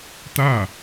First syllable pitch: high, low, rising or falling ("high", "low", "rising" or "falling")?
falling